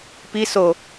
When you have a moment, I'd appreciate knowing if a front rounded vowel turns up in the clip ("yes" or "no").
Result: no